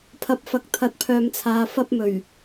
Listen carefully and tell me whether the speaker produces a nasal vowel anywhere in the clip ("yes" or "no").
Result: no